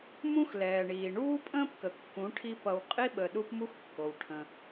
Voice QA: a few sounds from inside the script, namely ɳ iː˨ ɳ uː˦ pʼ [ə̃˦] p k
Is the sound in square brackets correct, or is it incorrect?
incorrect